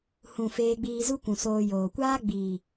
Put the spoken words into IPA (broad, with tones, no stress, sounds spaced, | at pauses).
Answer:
h ũ˨ f eː˧ ɡ͡b iː˧ z u˦ kʷ ũ˨ s oː˧ j oː˨ kʷ aː˦ ɡ͡b iː˨